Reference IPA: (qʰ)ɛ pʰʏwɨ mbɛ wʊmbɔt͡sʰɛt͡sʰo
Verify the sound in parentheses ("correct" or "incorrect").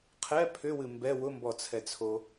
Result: correct